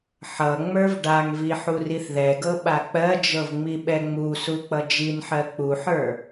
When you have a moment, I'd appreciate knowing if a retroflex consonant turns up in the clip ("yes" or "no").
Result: yes